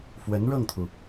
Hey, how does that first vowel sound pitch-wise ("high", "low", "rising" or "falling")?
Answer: rising